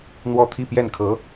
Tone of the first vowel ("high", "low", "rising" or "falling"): falling